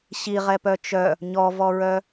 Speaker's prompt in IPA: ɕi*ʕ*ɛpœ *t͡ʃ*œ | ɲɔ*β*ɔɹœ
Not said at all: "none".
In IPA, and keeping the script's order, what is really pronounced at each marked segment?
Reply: ʁ, t͡ʃ, v

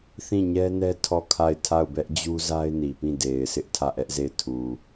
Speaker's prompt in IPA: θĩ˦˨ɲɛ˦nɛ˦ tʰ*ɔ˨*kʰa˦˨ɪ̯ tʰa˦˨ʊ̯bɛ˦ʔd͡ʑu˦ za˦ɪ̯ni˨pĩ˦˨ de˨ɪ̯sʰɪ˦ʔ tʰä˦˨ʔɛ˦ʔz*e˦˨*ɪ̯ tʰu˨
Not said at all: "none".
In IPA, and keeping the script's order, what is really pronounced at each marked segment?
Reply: ɔ˦˨, e˦˨

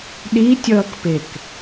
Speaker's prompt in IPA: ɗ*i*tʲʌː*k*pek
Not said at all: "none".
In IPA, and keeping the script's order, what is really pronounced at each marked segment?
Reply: i, k

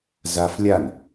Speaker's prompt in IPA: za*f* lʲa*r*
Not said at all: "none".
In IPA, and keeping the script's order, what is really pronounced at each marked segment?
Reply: f, n

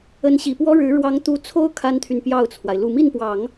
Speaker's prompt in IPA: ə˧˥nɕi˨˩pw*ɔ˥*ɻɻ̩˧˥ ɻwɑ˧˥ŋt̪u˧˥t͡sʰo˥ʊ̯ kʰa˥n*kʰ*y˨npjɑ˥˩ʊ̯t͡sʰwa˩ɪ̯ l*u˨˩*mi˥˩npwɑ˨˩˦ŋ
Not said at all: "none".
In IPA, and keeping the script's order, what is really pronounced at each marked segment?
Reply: ɔ˥, t̪ʰ, u˨˩

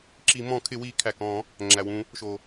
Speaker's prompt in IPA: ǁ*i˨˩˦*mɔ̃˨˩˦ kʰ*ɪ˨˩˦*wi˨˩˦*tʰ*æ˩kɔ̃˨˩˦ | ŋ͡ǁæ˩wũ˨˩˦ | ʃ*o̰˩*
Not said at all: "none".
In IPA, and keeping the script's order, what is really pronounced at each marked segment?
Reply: i˨˩˦, ɪ˨˩˦, kʰ, o˩

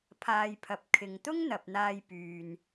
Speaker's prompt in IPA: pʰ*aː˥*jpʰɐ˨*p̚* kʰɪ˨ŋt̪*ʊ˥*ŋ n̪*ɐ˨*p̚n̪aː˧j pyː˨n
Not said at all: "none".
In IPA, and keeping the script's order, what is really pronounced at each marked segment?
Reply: aː˧, p̚, ʊ˥, ɐ˨

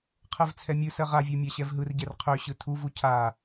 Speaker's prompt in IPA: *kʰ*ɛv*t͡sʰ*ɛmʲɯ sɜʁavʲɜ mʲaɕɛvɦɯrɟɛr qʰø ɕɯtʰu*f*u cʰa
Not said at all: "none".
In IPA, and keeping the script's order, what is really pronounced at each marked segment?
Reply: qʰ, t͡sʰ, v

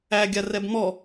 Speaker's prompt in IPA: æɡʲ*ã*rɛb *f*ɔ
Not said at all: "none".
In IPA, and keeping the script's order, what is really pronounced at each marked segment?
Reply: a, m

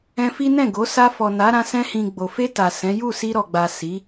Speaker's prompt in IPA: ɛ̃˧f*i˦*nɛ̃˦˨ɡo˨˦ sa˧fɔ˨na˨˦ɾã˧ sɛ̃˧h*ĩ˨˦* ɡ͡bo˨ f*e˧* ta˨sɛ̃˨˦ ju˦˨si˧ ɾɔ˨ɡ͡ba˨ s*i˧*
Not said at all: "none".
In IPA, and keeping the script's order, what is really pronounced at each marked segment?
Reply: i˦, ĩ˨, e˧, i˨˦

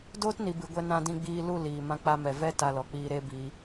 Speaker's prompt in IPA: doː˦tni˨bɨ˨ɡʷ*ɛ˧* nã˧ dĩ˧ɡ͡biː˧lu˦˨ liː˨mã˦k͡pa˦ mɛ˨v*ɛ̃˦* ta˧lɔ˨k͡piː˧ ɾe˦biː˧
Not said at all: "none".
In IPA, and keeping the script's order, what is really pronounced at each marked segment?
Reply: ɛ˧, ɛ˦

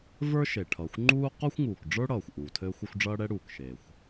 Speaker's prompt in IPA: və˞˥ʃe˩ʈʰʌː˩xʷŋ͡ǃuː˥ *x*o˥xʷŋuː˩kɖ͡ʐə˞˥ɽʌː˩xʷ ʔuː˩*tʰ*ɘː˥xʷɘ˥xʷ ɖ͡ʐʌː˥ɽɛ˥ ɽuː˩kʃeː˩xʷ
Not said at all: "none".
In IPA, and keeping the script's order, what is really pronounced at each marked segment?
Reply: q, tʰ

